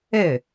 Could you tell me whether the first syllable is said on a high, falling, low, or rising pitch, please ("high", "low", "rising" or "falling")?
falling